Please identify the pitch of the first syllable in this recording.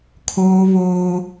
high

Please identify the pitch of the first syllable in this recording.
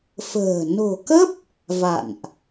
low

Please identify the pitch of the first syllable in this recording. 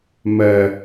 low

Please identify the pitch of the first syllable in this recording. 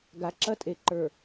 low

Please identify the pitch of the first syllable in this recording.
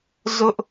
high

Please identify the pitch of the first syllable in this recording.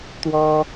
high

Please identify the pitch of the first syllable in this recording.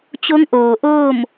rising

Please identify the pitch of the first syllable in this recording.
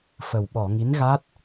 low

